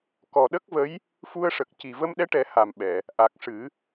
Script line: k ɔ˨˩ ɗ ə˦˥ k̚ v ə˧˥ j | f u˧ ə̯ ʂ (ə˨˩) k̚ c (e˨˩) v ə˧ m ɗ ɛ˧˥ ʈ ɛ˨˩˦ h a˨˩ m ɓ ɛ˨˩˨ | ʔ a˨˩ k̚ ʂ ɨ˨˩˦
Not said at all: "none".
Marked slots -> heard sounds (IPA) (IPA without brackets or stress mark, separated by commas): ə˨˩, i˨˩